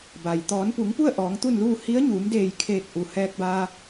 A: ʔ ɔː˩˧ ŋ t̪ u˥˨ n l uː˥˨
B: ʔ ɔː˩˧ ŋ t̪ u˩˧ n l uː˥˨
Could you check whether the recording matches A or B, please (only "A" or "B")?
A